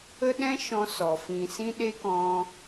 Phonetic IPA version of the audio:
ə˦ ɗ ɛ̃˦ ʃ ɔ̃˦ s ɔ˨ f ĩ˨ s ĩ˧ ɗ e˦ k ɔ̃˧

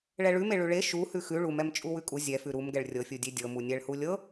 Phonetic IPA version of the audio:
ɭ ɛ ɭ ʉ m e ɭ ʉ ɭ e ʃ u h ʉ x ʉ ɭ u m ɛ m t͡ʃʼ u w ʉ kʼ u zʲ ɛ f ʉ ɾ u m ɡ ɛ ɭ rʲ ɤ fʲ u dʲ e dʲ ɤ m u nʲ ɛ ɭ h u lʲ ɤ

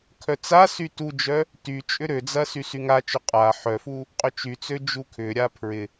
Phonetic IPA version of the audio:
kʰ œ t͡s a s y t u d͡ʒ œ | t y t͡ʃʼ ʏ ɾ ø d͡z ɐ s y s y ŋ a t͡ʃ ø qʼ a ħ œ f u | qʼ ʏ t͡ʃ y t͡s ø d͡ʒ u kʰ ʏ ɾʲ a pʰ ɹ ɪ

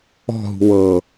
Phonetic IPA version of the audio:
ɔ̤ ɦ ṳ w ɤ

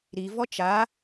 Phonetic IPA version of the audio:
ɾ i v ɔ t͡ʃ a

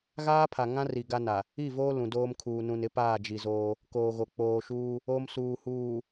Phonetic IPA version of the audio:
ɣ aː˦ pʰ a˨ ŋ ã˦ r i˨ ɡ a˦ n a˨ | i˦˨ v oː˦ l ũ˨ d oː˦ m kʰ uː˨ n ũ˨ n ɪ˨˦ p aː˦˨ d͡ʒ i˨ z oː˦ | k oː˨ ɣ o˨ k͡p oː˨ ʃ uː˦ | o˦ m s uː˨ h uː˨

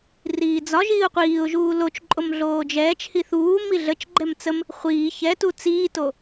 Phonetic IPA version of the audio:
r iː d͡z ɒ ʒ iː ʊ̯ qʷ iː ʊ̯ ʒ uː l o t͡ʃ ǃʼ o m ɮ oː d͡ʒ ɛː t͡ʃ h i θ uː m i ɮ ə t͡ʃ ɡ͡ǃ ɛ m t͡s ə m | χʷ iː ç ɛ t u t͡s iː t o

